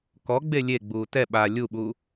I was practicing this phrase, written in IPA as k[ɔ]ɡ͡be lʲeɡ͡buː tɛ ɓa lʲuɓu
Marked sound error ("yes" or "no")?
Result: no